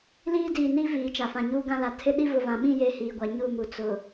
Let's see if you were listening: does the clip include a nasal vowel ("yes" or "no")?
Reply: yes